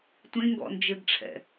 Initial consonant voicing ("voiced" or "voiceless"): voiceless